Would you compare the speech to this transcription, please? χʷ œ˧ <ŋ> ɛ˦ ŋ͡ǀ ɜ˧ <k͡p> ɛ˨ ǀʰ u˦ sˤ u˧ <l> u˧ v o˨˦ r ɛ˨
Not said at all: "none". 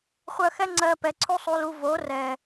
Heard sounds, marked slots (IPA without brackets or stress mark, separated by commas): x, p, l